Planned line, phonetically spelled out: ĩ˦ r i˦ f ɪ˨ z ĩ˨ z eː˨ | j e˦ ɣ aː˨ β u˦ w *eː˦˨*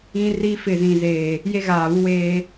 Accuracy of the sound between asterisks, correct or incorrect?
incorrect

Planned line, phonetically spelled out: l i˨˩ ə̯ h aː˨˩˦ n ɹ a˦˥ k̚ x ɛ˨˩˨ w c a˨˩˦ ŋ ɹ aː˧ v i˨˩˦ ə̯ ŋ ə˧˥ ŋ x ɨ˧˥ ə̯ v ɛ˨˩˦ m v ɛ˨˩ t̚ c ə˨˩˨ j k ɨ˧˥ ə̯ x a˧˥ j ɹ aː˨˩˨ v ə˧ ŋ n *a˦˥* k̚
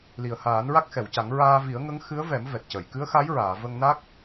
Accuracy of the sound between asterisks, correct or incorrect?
correct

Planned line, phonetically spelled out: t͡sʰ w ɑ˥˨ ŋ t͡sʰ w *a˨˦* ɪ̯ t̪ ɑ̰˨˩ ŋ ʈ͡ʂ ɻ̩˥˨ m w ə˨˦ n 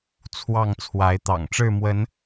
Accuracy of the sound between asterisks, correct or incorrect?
correct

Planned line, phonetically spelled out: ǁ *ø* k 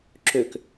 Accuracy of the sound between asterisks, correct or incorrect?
correct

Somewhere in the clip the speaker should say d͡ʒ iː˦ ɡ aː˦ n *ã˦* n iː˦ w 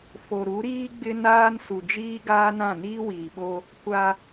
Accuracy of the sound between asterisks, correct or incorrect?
incorrect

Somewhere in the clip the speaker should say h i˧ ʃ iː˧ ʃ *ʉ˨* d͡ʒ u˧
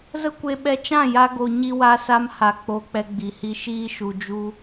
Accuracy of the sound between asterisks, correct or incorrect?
incorrect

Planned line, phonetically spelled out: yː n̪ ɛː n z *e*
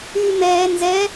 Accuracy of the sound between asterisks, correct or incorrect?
incorrect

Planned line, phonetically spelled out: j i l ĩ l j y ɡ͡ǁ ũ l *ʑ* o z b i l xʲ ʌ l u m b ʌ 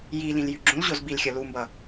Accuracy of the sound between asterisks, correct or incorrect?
correct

